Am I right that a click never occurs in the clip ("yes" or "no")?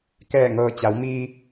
yes